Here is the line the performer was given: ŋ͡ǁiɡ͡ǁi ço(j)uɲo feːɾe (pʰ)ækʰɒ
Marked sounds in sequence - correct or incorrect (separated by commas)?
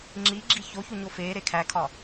incorrect, incorrect